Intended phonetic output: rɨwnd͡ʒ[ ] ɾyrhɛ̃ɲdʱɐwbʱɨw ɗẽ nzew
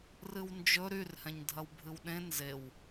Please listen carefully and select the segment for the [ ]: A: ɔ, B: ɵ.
B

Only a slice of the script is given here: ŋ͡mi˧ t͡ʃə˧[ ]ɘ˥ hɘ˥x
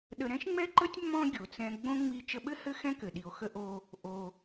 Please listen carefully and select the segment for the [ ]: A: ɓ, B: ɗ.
A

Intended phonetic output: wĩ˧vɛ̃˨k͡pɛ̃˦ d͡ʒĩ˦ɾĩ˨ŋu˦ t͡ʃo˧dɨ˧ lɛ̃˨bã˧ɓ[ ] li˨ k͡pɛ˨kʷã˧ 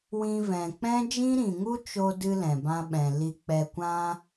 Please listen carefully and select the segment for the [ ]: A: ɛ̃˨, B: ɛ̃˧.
A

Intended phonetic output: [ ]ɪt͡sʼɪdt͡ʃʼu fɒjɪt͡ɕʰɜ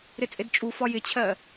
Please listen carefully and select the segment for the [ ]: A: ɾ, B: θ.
A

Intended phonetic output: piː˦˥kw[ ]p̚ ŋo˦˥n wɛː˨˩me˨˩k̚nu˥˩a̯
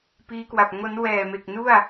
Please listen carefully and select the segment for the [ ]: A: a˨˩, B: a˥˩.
A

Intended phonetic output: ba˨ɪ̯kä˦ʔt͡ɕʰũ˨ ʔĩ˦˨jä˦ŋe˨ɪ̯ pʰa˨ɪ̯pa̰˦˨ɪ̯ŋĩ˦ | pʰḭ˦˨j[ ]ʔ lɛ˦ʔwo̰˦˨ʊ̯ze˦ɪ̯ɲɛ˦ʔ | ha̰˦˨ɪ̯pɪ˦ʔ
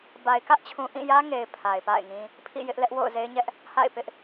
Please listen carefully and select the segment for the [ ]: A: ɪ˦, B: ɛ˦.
A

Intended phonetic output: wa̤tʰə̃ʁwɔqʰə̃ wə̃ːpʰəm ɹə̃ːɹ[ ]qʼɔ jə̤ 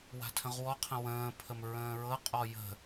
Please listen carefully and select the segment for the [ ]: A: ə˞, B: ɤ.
B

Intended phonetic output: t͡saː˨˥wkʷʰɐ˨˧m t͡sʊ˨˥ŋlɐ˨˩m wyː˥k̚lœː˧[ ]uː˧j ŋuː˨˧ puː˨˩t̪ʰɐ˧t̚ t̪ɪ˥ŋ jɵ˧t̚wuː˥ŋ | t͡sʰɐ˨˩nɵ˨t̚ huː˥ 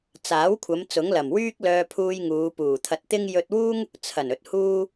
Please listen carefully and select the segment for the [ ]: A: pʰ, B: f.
A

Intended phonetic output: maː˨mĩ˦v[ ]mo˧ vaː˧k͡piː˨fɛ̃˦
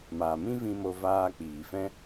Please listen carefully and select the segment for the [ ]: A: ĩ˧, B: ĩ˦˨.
A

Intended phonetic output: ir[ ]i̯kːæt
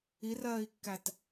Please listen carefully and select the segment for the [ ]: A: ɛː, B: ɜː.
B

